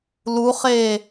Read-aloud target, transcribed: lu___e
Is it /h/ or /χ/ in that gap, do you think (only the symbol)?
χ